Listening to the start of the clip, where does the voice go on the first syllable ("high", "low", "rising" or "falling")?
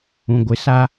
low